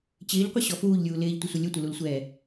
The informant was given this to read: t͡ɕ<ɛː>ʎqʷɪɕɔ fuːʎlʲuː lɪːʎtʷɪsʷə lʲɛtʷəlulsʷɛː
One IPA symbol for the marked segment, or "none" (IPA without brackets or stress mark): ɪː